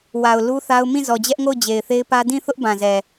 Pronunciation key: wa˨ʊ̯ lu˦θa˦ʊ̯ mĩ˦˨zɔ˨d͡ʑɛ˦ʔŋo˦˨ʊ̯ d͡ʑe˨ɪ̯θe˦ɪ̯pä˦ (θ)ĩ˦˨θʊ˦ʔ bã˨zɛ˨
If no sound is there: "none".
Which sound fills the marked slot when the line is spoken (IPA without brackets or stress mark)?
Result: d